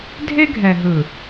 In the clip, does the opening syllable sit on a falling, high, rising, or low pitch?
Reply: high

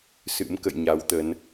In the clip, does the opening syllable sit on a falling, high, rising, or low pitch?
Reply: rising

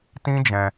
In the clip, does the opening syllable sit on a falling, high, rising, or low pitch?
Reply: high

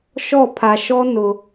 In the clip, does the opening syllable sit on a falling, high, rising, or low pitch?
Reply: falling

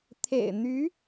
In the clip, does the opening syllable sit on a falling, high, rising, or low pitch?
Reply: low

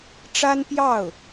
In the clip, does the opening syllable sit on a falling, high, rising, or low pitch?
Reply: high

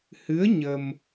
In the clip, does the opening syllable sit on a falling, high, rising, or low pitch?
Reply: rising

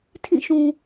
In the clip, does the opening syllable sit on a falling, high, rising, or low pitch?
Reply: falling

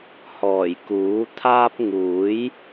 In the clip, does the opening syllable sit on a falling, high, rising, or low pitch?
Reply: low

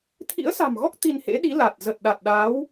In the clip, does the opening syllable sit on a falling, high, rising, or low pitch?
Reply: rising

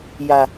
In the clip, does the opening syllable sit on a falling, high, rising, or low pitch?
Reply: low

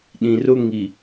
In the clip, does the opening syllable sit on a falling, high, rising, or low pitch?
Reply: low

